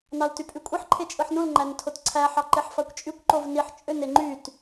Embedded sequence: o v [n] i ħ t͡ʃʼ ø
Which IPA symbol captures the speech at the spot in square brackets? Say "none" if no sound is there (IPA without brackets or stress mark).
n